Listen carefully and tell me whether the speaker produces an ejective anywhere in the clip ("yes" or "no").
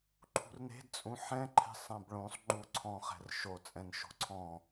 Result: yes